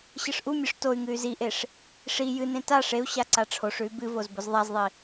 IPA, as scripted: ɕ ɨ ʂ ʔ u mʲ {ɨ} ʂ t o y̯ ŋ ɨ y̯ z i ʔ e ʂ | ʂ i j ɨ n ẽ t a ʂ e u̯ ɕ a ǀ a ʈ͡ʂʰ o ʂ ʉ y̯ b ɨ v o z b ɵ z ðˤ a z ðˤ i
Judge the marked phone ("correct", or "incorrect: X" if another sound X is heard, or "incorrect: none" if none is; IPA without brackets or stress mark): incorrect: ʉ